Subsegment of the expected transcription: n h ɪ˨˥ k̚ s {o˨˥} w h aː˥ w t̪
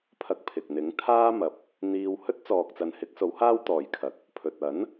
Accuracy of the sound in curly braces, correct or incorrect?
correct